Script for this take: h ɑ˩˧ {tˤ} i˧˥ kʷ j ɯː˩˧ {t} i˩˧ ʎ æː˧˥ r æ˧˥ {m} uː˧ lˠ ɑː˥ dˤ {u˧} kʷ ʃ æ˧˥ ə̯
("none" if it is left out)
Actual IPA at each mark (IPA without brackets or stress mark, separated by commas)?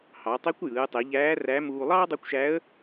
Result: tˤ, tˤ, m, u˧˥